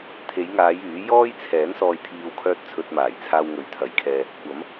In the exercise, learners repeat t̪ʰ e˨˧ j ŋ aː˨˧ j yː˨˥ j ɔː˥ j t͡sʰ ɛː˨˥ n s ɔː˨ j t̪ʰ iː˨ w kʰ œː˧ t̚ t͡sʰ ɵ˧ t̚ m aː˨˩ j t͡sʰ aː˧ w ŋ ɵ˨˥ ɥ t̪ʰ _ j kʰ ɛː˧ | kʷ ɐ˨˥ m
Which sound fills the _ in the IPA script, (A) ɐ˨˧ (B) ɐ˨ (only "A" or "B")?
B